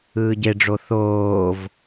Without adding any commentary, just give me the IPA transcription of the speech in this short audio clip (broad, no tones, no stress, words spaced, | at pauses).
ɯːɟeɖ͡ʐo θoːv